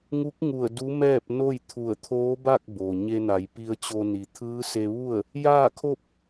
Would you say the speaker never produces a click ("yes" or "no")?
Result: yes